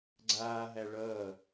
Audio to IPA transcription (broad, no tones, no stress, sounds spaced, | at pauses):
ɡ͡ǀ aː ɦ æ ɭ ʌː